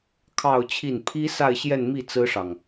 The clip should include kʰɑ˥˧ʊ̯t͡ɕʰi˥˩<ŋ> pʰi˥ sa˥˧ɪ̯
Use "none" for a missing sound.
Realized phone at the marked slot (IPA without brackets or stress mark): n